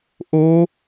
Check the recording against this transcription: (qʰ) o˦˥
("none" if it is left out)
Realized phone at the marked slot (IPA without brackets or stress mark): ʔ